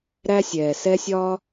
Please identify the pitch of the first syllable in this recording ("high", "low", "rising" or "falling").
high